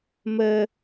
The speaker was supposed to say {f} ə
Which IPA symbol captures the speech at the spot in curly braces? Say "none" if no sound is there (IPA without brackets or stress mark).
m